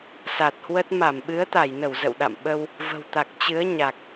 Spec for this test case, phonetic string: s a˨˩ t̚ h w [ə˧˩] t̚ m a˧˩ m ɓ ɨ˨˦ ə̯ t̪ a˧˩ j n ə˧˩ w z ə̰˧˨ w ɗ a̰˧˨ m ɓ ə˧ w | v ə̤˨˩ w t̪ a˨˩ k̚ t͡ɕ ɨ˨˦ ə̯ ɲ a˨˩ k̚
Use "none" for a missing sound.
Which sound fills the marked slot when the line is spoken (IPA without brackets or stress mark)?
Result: ə˦˥